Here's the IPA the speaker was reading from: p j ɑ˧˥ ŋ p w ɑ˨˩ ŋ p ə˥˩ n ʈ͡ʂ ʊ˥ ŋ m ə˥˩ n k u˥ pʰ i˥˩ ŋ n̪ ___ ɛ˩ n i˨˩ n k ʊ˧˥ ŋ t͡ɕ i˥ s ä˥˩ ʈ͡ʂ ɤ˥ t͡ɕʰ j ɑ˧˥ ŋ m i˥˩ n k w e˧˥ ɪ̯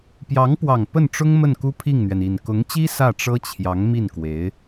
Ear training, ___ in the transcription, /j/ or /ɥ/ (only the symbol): ɥ